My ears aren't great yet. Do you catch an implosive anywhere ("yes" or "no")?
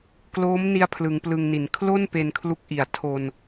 no